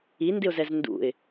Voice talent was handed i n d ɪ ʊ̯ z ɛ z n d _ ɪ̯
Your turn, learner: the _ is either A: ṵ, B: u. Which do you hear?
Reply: A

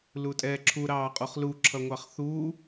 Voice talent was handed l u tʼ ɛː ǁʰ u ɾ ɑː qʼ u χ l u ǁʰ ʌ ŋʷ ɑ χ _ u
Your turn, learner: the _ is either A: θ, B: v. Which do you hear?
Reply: A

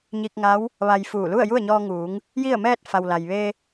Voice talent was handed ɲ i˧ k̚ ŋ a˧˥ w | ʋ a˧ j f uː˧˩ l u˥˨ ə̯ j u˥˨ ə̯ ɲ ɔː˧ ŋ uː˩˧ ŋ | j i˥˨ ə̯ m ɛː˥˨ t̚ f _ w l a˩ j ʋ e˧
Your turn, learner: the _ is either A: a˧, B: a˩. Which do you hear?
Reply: B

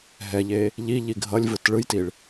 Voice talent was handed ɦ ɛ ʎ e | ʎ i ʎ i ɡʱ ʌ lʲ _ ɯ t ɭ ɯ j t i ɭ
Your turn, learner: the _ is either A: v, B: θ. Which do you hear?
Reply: A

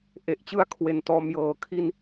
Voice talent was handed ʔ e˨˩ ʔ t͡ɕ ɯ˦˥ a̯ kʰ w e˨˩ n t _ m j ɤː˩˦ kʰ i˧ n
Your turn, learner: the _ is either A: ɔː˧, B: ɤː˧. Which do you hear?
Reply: A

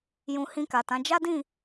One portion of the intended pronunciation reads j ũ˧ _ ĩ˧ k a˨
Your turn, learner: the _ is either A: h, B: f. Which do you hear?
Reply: A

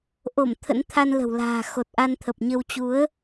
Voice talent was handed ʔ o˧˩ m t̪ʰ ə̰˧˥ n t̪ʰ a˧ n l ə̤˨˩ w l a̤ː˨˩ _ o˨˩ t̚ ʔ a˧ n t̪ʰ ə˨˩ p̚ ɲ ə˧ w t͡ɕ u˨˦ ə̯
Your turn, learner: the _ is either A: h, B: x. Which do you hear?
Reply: B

